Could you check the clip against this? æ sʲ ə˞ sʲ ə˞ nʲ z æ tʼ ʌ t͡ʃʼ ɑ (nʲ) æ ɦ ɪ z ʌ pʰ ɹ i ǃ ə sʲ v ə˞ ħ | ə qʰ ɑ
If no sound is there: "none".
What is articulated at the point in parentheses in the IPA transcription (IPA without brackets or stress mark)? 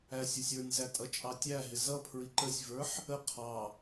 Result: tʲ